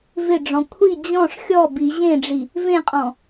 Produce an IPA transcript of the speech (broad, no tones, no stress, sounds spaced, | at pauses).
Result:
v ɪ ɖ͡ʐ ɔ̃ kʷʰ i d͡ʑ ɔ̃ ʂ xʲ ɔ b i ʑ ẽ ɖ͡ʐ i | v ẽ qʼ ɔ̃